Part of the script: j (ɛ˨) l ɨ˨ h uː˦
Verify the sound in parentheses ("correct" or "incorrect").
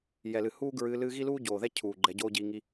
correct